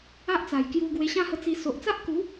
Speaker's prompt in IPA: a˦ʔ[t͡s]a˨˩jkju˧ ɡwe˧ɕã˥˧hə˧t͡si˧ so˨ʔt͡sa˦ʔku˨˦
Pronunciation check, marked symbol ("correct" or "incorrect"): correct